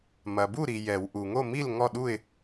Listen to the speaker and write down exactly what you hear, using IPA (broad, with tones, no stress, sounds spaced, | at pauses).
m ɐ˨ b u˥˨ ɾ i˨ j ɛ˨˩˦ w ʔ u˨ ŋ o˥˨ m i˥˨ l ŋ ɔ˥˨ ɗ u˥˨ ɪ̯